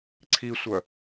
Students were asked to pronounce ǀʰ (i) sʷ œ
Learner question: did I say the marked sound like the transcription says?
yes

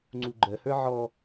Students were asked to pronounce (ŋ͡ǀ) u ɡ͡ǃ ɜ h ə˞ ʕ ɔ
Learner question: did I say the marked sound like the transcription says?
yes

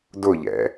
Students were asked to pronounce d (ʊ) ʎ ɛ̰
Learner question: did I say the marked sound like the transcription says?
yes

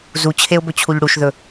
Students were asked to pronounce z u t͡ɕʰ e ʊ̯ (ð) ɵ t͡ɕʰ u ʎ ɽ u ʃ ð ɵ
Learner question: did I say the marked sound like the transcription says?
no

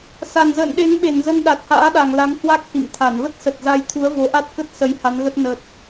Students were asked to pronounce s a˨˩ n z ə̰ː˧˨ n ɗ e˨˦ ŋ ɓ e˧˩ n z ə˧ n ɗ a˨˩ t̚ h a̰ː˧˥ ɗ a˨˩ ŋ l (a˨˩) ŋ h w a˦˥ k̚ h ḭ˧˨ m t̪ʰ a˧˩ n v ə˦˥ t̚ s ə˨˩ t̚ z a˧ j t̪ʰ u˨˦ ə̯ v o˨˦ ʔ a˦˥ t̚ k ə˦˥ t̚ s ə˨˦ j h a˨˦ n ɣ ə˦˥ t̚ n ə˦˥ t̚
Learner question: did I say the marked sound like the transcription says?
no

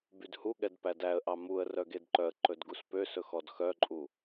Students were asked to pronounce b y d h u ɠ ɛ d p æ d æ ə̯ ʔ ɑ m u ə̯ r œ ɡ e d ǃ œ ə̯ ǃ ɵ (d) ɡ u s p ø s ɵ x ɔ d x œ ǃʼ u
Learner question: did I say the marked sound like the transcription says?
yes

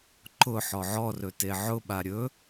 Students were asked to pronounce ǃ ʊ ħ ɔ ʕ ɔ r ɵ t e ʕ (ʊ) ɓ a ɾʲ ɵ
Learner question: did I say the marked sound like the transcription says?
yes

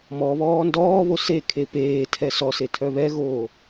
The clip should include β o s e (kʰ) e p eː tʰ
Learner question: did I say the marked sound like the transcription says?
yes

